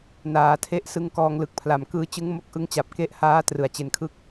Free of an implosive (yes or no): yes